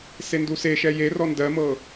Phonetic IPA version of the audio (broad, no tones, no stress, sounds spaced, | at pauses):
s e n d u s e ʃ ɛ j e r ɔ n d ɜ m ɤ